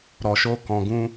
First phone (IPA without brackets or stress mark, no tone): ɾ